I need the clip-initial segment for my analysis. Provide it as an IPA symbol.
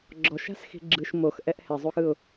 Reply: ɡ͡ǁ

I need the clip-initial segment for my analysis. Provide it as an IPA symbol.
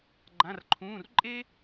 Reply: ɡ͡ǃ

